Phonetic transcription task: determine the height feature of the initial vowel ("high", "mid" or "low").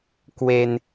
mid